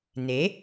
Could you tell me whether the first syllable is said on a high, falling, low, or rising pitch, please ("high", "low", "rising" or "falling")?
rising